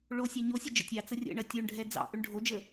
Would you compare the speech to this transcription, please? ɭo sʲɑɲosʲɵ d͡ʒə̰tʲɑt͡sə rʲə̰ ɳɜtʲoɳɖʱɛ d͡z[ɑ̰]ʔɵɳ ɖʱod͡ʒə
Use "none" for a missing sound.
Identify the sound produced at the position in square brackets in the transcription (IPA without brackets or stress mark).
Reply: ɑ̰